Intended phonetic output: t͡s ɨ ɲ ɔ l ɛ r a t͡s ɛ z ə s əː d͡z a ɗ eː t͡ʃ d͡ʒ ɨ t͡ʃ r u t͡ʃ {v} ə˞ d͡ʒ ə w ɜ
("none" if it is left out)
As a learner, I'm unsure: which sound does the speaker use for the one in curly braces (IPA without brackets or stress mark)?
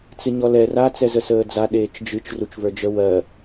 v